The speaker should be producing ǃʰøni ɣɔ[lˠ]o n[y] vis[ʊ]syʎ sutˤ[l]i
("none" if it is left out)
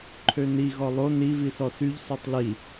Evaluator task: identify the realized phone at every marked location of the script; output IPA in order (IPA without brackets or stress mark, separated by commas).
lˠ, i, ɔ, l